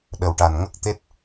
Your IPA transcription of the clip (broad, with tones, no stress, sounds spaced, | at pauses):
ɗ ə˨˩ w ʈ a˨˩ n ŋ ə˦˥ k̚ t̪ e˦˥ t̚